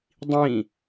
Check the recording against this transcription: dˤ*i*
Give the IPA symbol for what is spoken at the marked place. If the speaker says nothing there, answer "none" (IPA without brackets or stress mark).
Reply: ĩ